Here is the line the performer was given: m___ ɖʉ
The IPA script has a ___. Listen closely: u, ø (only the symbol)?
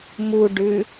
u